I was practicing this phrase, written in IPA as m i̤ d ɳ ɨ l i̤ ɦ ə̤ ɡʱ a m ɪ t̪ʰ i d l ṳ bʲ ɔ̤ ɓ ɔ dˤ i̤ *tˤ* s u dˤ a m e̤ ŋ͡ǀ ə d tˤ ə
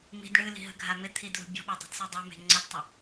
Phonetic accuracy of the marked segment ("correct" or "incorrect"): incorrect